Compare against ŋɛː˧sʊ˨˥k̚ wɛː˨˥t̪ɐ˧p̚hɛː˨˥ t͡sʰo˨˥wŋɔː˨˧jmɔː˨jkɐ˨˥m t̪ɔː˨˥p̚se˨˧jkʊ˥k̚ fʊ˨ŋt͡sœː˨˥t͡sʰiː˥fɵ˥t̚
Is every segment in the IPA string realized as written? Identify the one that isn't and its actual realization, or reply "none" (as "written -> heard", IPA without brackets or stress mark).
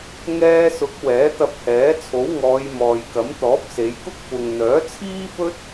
t͡s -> n̪